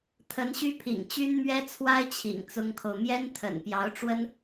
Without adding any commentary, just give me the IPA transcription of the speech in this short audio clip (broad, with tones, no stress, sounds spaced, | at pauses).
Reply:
t̪ʰ ə˧˥ n ɕ y˥ pʰ ḭ˨˩ ŋ t͡ɕ y˥ n m ɥ ɛ˥ t͡sʰ w a˥ ɪ̯ t͡ɕʰ ḭ˨˩ ŋ t͡s ʊ˥ ŋ kʰ o˨ ʊ̯ m j ɛ˥ n t̪ʰ ə̰˨˩ n p j ɑ˧˥ ʊ̯ ʈ͡ʂ w ə˥ n